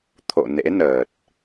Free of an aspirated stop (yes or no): no